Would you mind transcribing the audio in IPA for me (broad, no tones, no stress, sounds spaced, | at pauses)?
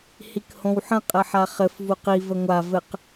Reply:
h i k h õ w ħ ə̃ qʼ ɘ ħ a χ ɘ f v u q i v ə ŋʷ a v ɘ q